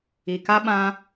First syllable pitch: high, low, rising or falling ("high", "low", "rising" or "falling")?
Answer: low